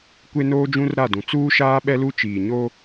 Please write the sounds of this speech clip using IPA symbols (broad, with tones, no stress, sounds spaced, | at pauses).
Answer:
kʷ e˦ n oː˦ d͡ʒ ũ˦ r ɾ a˦˨ d ũ˨ t͡s uː˦ ʃ aː˦ ɓ ɛ˦ l u˦ t͡ʃ iː˨ ɲ o˦